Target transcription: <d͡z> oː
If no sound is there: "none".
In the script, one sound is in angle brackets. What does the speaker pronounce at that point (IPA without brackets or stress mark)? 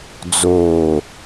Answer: d͡z